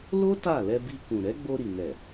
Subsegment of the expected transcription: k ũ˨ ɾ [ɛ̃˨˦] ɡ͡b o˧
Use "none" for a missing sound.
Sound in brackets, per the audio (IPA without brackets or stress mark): ɛ˨˦